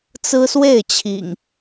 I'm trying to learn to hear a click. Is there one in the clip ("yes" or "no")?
no